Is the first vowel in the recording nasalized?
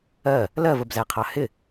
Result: no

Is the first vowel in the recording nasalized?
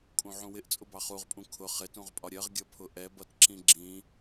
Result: yes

